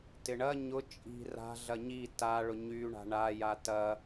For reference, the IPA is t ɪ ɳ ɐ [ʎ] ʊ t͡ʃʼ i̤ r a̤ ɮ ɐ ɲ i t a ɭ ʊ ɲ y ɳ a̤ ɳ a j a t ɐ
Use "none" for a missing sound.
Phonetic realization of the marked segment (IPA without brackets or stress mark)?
ɲ